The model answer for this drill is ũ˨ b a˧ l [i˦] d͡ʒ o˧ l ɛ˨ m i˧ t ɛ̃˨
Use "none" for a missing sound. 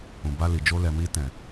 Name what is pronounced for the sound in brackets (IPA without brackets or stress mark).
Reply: i˨